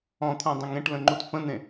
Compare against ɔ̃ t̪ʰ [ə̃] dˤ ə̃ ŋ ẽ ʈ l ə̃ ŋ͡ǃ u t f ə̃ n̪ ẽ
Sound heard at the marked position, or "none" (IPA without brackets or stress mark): ã